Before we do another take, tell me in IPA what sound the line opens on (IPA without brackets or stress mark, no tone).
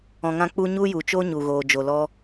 ɔ̃